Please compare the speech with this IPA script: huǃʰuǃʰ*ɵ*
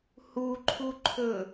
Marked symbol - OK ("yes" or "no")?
yes